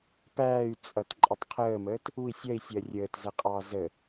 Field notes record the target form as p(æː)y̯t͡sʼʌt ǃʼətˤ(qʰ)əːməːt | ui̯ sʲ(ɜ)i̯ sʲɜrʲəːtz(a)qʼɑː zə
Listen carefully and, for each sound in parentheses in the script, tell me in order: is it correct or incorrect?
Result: correct, correct, correct, incorrect: æ

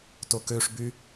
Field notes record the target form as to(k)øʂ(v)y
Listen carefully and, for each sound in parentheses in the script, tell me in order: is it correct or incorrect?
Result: correct, incorrect: b

